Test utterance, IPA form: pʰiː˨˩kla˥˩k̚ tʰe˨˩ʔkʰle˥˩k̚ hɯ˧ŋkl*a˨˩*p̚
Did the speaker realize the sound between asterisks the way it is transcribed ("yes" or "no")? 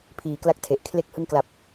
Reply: yes